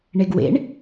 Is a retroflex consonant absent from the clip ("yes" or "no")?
no